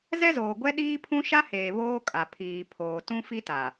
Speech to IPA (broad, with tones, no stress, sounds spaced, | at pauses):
z ɛ˦ z oː˨ ɡʷ ɛ˦ ɗ iː˦ pʰ ũ˦ ʃ a˦ h eː˨ β oː˦ kʼ a˨ pʰ iː˨ pʰ oː˨ t ũ˦ f i˦ t a˨